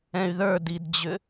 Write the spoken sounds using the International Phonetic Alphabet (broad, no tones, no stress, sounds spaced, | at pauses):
ɛ̃ y̯ ð ə˞ d i d d͡ʑ ʏ